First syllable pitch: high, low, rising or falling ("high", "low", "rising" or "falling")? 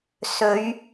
rising